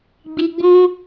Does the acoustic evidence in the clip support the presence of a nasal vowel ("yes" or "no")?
yes